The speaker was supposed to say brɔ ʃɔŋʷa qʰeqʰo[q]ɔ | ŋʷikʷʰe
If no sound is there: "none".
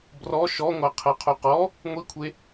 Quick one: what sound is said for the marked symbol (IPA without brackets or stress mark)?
q